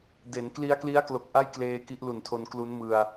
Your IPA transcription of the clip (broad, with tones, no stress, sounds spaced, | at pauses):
d e˩˦ n k l i˦˥ a̯ k l i˦˥ a̯ k l o˨˩ k̚ ʔ a˥˩ j k l eː˧ k i˦˥ ʔ l u˨˩ n tʰ o˧ n k l u˦˥ n m ɯ˧ a̯